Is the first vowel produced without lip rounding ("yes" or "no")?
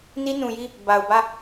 yes